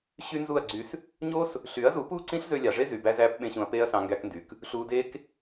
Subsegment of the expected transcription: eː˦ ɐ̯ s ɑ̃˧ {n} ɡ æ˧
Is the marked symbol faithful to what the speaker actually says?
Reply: no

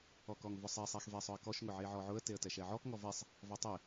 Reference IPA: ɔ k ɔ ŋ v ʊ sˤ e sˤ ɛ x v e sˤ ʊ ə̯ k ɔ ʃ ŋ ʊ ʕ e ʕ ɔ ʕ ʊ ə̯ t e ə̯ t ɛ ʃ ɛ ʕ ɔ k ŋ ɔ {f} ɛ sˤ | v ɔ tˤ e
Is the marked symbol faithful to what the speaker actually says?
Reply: no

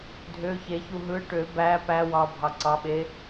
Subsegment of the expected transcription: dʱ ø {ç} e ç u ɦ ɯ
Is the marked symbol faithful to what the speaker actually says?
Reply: yes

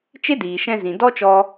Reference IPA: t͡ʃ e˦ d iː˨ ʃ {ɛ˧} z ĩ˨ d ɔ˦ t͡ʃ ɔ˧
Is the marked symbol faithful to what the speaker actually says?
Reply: no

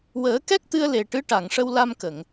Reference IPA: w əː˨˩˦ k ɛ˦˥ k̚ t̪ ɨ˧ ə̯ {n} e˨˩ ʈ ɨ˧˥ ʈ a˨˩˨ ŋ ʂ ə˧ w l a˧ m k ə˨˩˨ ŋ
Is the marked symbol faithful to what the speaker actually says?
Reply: no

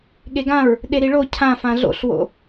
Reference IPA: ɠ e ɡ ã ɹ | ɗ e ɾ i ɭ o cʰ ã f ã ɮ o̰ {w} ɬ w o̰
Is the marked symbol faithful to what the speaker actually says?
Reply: no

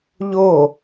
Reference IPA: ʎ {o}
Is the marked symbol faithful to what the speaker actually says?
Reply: yes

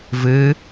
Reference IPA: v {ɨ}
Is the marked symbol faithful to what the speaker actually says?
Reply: yes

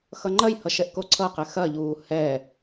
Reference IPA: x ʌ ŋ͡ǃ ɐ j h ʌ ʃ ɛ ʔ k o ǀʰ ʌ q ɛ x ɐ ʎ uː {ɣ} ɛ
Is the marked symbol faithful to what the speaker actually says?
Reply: no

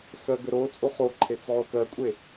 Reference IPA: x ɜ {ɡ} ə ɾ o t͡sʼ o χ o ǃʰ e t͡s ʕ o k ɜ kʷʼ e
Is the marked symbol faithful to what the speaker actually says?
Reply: yes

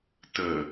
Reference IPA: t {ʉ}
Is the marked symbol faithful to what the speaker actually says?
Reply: no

